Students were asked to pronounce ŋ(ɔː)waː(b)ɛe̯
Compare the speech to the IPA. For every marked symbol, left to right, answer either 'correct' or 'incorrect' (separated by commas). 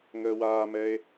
incorrect, incorrect